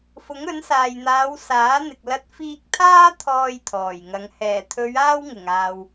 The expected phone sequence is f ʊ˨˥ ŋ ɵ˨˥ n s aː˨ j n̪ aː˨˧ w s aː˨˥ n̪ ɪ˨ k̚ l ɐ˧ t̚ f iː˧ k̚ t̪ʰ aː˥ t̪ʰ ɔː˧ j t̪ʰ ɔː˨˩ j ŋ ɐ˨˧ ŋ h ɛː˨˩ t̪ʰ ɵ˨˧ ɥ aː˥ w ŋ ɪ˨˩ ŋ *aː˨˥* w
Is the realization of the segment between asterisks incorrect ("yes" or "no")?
yes